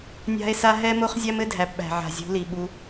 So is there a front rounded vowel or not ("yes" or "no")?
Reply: no